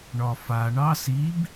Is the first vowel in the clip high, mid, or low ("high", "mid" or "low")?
low